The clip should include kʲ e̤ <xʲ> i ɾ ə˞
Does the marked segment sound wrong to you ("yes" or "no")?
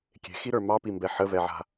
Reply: yes